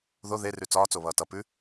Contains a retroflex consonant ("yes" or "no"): no